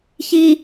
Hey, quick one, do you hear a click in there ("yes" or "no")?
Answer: no